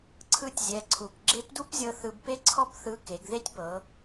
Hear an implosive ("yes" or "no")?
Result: no